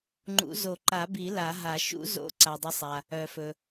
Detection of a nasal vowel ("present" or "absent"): absent